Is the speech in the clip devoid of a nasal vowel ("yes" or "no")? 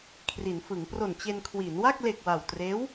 yes